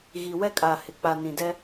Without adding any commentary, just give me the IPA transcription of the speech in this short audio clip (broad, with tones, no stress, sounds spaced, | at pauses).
ɣ i˨ w ɛ˦ kʼ a˨ h ɪ˨ k͡p a˨ n ĩ˨ d ɛ˦